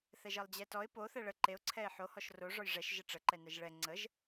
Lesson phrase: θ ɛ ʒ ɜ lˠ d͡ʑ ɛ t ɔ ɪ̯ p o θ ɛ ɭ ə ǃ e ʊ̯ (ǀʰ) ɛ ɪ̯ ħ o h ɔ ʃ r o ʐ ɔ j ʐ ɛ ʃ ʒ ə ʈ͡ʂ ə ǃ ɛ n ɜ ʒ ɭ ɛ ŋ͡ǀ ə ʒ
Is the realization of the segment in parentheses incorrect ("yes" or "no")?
no